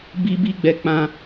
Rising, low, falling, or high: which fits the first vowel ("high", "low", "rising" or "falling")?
high